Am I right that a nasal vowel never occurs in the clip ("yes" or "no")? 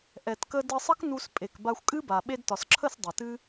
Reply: yes